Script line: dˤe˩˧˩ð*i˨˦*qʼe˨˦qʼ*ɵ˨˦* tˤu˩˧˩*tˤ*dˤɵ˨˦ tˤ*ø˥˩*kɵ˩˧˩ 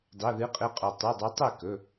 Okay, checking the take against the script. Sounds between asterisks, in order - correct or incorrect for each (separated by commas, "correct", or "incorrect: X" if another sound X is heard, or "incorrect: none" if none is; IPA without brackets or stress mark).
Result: incorrect: ɨ˨˦, incorrect: ɵ˩, incorrect: none, incorrect: e˥˩